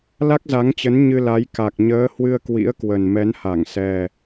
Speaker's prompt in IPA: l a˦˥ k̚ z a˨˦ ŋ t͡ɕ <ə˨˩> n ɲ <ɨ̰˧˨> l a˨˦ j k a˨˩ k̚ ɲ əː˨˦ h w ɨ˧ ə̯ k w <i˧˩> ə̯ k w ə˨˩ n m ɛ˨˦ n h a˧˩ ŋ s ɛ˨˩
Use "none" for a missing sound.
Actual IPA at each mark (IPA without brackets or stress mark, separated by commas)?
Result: ə˨˦, ɨ˧, ḭ˧˥